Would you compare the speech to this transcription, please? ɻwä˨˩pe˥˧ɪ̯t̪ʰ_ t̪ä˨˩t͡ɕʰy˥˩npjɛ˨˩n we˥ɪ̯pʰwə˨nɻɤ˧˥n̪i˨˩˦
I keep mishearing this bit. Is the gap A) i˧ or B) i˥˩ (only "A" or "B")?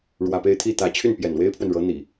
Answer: B